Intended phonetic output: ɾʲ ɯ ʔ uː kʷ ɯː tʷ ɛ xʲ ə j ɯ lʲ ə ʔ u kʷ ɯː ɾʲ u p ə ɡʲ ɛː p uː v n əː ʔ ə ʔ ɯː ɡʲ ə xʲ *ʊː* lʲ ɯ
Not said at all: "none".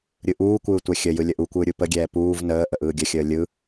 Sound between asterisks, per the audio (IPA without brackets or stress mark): əː